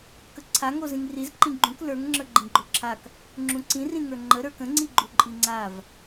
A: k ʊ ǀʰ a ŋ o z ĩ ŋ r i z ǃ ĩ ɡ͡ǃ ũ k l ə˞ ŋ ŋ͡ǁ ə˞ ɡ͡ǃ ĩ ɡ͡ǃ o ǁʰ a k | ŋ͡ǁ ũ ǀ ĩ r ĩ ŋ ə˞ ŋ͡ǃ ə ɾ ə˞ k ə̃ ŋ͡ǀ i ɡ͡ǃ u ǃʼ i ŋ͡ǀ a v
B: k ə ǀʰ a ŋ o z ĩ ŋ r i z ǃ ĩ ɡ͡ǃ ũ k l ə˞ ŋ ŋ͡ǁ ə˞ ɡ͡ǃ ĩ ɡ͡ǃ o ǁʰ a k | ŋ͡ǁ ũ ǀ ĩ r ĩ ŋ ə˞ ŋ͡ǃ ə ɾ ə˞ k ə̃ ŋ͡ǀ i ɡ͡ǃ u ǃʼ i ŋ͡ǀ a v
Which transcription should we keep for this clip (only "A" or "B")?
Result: B